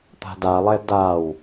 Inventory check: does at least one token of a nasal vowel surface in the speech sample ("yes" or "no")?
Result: no